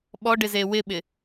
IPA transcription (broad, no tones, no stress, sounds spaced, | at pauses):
ɓ ɔ ɖ ɪ z e w ɪ ɓ ɪ